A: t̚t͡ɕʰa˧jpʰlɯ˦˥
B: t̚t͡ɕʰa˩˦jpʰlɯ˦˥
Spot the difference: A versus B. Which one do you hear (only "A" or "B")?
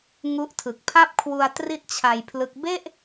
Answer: A